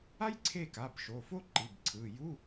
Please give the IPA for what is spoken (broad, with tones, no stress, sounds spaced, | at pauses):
a˥ j ǀʰ e˦˨ k a˩˧˩ b ʃ o˩˧˩ f o˥ ǃ i˩˧˩ b ǀʰ ɯ˩˧˩ j u˧˥˧